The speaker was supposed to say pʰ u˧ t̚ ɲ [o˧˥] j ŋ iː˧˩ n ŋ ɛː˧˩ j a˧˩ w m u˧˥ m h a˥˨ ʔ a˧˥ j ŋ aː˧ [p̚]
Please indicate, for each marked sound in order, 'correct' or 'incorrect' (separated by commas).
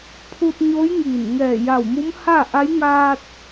correct, incorrect